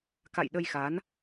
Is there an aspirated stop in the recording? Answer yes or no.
no